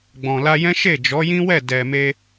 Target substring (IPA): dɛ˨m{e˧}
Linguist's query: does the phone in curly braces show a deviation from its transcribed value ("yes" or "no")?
no